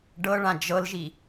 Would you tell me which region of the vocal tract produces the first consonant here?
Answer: retroflex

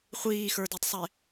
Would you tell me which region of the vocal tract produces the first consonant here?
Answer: uvula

